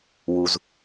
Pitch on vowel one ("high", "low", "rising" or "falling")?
low